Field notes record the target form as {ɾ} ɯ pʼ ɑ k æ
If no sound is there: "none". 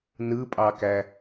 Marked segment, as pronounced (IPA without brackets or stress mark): n